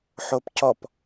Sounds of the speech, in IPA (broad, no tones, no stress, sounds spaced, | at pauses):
ħ o p c ɔ p